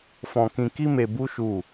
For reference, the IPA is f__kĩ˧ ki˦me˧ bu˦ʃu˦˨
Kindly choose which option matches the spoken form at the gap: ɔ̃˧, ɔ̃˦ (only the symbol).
ɔ̃˧